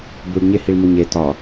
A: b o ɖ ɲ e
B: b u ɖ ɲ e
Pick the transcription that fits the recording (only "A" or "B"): B